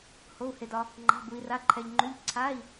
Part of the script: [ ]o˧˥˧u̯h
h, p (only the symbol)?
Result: h